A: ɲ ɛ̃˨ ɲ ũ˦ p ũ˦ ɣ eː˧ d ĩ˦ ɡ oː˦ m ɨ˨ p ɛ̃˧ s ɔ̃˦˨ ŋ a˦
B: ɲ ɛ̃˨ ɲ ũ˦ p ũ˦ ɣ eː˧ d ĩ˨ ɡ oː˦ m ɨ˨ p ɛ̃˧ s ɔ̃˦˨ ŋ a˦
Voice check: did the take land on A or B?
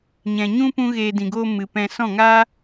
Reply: B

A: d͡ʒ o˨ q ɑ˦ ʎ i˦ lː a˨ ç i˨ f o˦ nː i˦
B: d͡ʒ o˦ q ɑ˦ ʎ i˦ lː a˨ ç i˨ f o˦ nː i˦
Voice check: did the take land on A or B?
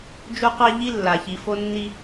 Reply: B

